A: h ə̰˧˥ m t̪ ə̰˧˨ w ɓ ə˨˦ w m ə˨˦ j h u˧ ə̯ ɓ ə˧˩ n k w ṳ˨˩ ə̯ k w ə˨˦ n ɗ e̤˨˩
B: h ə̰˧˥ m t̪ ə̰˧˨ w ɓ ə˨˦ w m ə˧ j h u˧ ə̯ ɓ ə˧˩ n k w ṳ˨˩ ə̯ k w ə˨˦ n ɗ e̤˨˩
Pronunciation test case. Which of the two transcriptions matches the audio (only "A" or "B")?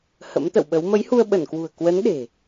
A